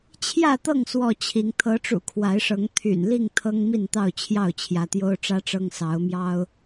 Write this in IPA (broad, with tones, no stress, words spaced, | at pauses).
t͡ɕʰjä˥˨t̪ɤ˥˨ŋ swɔ˥˨t͡ɕʰi˨˦ŋ t̪ʰɤ˨˦ʈ͡ʂṵ˨˩ kʰwa˨˦ɪ̯ʂɤ˨˦ŋ t̪ʰy̰˨˩n li˥˨ŋ t̪ʰɤ˦ŋmi˥˨nt̪ɑ˥˨ʊ̯ t͡ɕʰjɑ˥˨ʊ̯t͡ɕʰjä˨˦ t̪jo˦ʊ̯ʈ͡ʂä˦ʈ͡ʂɤ˦ŋ sɑ˨˦ʊ̯mjɑ˦ʊ̯